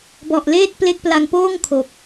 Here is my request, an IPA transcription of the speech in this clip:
b ɔ˨˩ ʔ l eː˥˩ t̚ p l e˦˥ k̚ p l a˧ ŋ p oː˥˩ ŋ kʰ o˨˩ k̚

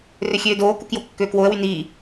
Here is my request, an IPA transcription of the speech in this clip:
r ø xʲ øː d oː k u k j o kː øː k w o ə̯ w y n iː

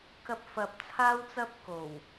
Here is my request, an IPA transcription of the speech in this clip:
k ɐ˧ p̚ f ɐ˨˥ p̚ t͡sʰ aː˥ w t͡s ɐ˥ p̚ k o˨˩ w

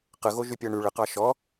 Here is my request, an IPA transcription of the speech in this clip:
q ə ɣ o ʒ y pʲ ɜ ɳ y ɭ ə q ɑ ʃ ɔ

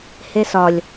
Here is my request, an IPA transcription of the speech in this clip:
h e s ɒ lʲ

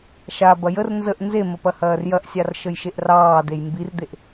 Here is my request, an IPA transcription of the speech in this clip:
ʃ a b ɐ j ə r n z ə ʔ n z e m ə p ɐ h ɐː r j ɐ ʔ sʲ ɑ r ʃ ə j ʃ e ʔ r ɑː d e j m b i r d̪ e ʔ

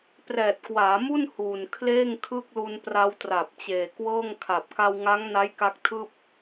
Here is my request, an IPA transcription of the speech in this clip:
p r ɛː˨˩ t̚ k w aː˩˦ m u˥˩ n h uː˨˩ n kʰ l eː˥˩ ŋ kʰ ɯ˥˩ k̚ l u˧ n p r a˧ w t r a˨˩ p̚ t͡ɕ eː˨˩ k w ɤː˥˩ ŋ kʰ a˨˩ p̚ k a˧ w ŋ a˦˥ ŋ n a˦˥ j k a˦˥ k̚ tʰ ɯː˥˩ p̚

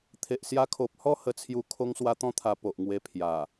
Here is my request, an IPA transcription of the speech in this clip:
t̪ʰ e˨ ʔ s j a˧ kʰ o˨ p̚ h ɔ˥˧ h ə˥˧ t͡sʰ j u˦ kʰ o˦ ŋ s w a˦ t̪ ɔ̃˦ t̪ʰ a˧ p o˨ ʔ ŋ w e˧ pʰ j a˨˩

